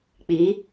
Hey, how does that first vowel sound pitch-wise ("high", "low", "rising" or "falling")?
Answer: rising